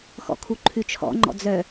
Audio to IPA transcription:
xɔ̰kʰuǃʰʉt͡ʃʰɔ̰ ŋ͡ǃɔ̰d͡zœ

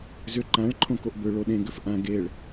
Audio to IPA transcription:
zʏ ǃãɭ ǃʰõkoʔbʏ ɭoɗẽɡʏf ʔã ɡeɭ

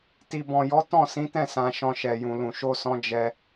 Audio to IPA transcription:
ti˨bɔ̃˨ jɔ˨˦ tɔ̃˦˨sĩ˨˦tɛ̃˦˨ sã˨ ʃɔ̃˧ʃɛ˨ jũ˨lũ˨ ʃo˧sɔ̃˧ d͡ʒɛ˧

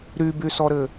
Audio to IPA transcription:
ɾybysɔɾɘ

